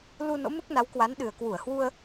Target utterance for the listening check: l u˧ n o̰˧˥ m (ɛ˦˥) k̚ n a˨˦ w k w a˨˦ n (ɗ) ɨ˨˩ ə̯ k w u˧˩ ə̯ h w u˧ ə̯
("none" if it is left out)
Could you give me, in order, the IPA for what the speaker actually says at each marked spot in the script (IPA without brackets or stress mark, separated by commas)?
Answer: ɨ˦˥, ɗ